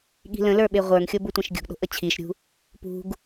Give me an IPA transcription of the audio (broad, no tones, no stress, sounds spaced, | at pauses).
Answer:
ɠ i̤ l ə̃ l ə˞ ɓ e ʁʷ ə˞ ŋ xʲ o b u tʷ ẽ ʃ ɡʲ ṳ ɡ ɗ o̤ ʔ ə t͡ɕʰ i ʃ ɾʲ ṳ | p ṳ ɡ